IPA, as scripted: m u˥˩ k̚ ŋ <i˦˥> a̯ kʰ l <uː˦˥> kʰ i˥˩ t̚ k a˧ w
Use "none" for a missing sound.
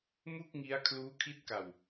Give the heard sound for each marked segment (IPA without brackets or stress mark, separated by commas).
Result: i˦˥, uː˦˥